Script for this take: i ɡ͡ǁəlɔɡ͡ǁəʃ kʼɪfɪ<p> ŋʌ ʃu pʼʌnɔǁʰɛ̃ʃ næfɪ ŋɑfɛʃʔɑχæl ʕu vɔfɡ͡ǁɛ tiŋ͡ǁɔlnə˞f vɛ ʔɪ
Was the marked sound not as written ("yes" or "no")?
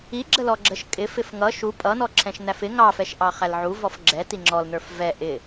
yes